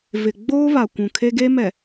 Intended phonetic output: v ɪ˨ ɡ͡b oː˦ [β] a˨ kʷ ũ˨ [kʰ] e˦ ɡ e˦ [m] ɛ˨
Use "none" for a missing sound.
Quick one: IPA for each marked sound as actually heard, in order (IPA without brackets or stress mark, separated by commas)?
β, kʰ, m